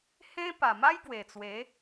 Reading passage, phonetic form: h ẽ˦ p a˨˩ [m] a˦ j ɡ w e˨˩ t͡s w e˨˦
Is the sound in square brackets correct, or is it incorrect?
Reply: correct